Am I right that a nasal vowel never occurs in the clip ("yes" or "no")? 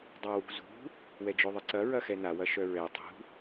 yes